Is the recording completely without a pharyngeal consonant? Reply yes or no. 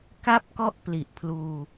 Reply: yes